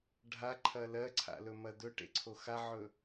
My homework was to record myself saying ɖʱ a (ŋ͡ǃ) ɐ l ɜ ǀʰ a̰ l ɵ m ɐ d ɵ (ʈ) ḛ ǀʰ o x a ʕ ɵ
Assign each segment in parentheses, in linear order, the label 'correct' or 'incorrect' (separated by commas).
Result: incorrect, correct